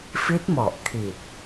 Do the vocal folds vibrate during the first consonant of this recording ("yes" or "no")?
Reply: no